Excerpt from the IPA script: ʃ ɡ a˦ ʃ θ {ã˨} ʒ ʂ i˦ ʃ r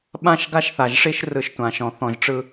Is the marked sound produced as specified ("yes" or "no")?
no